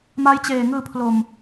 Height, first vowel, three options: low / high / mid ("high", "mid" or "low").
low